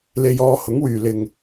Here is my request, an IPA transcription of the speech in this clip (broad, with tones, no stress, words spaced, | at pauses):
le˧jɔː˧hʊ˨˥ŋwyː˨ lɪ˨ŋ